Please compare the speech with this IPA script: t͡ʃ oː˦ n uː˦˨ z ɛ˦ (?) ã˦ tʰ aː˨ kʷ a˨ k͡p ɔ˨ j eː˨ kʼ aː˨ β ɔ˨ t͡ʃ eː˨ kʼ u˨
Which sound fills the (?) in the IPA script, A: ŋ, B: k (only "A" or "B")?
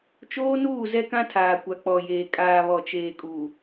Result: B